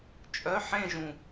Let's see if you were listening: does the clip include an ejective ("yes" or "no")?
yes